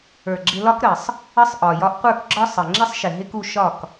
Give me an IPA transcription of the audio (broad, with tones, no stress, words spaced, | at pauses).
ə˞˨ɡ͡ǁɪ˧lɒ˦k ɾə˨sˤ | ə˦sˤʔɒ˨ jɒ˧ʔqʷə˞˦˨kɡ͡ǁɒ˦ sˤə˨ ŋ͡ǁɪ˦sˤʃɪ˨ ɦɪ˦ku˧ ʃɒ˦˨k